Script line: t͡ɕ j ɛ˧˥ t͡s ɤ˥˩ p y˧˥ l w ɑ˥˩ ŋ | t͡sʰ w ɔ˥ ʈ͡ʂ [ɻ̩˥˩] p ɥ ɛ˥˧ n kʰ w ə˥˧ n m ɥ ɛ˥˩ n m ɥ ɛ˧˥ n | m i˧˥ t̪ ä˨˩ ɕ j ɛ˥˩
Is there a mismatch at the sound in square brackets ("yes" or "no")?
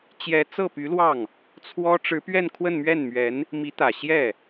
yes